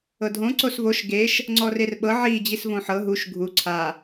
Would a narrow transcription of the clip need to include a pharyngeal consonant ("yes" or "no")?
yes